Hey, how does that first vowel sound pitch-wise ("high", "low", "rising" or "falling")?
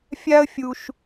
high